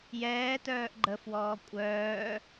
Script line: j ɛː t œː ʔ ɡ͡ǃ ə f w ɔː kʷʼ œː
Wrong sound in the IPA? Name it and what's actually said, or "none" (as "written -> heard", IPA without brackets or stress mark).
none